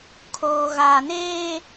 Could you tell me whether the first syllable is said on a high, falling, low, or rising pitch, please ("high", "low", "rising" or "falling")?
low